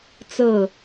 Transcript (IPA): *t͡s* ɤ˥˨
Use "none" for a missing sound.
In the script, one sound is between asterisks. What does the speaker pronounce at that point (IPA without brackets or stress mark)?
t͡s